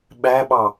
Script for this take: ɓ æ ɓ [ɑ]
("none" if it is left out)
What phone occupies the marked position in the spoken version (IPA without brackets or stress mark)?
ɑ